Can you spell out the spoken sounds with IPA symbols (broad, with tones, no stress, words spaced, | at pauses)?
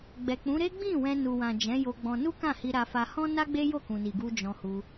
ɡ͡bɛ˨k͡pũ˨˦ ɾe˦ɡ͡bĩ˦˨ wɛ̃˧ nu˨wã˨ d͡ʒɛ̃˨˦jo˧ɡ͡bɔ̃˧ nu˦kã˦˨hi˧ ɾa˧fa˧ hɔ̃˦na˦ɡ͡be˦ jo˦˨kũ˨ni˨ɡu˧ d͡ʒɔ̃˧hu˧